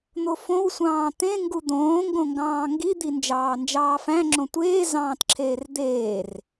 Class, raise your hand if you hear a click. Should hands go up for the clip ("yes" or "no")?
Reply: yes